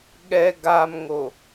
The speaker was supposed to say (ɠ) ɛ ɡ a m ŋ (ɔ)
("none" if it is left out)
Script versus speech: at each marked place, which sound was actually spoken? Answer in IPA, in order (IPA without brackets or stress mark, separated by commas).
ɠ, o